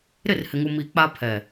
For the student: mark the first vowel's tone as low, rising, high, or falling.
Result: falling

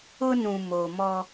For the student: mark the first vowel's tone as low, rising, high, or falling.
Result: high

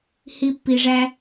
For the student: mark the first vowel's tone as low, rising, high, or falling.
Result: high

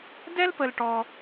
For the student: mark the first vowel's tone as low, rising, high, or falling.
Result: high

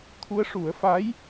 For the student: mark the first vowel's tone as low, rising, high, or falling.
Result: rising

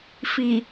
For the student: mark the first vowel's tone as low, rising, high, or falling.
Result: low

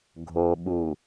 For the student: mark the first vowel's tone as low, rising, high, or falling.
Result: low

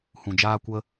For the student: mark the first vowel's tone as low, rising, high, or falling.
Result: low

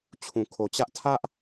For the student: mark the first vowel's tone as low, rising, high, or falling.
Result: low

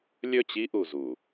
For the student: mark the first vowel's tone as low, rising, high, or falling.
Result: falling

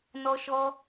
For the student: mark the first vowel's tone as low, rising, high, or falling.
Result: high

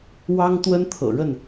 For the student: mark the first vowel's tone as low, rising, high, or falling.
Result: high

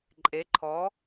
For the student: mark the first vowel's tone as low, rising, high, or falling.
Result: rising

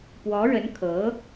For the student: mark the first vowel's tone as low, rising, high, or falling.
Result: rising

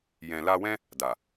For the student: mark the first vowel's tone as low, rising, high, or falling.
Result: low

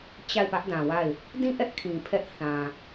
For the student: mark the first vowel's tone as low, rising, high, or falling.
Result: falling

